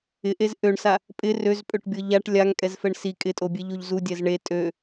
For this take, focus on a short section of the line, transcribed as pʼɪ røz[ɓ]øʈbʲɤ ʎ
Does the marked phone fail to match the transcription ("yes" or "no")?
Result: yes